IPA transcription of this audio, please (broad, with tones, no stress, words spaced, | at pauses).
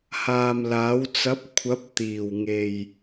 haː˨mlaː˨˥w t͡sɐ˨˥p̚kʷʰɐ˨˥p̚ t̪iː˨˩wŋe˨j